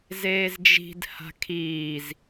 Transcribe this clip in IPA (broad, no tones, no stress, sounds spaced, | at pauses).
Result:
z eː z d͡ʒ i̤ d h a̤ kʰ iː z